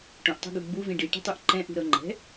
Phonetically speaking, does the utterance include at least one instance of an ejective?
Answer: no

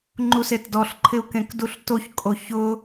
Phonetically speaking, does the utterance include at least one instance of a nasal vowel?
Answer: yes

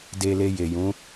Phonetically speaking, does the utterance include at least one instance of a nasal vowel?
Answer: yes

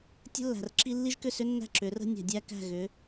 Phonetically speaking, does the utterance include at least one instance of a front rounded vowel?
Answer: yes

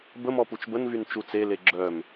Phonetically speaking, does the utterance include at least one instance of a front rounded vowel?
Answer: yes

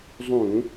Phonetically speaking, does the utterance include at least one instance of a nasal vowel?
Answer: yes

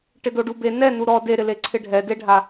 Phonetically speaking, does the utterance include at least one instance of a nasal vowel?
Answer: no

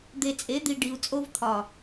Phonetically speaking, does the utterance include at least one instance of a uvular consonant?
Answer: no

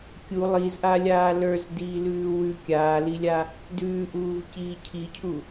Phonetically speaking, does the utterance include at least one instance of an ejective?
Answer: no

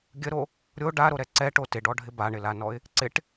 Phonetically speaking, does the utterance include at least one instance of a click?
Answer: yes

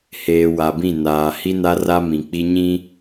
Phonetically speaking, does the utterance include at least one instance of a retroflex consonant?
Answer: no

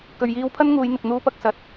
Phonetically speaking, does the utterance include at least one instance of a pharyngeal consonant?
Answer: no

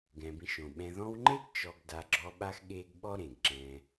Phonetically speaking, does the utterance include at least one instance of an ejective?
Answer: no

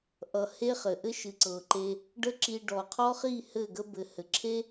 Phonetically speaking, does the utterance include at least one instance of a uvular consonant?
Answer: yes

